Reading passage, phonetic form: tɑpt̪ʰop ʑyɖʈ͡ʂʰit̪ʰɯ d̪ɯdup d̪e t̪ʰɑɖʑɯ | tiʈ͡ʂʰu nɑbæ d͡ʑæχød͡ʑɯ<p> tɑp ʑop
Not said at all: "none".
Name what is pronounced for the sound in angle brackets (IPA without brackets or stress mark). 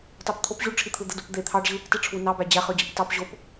p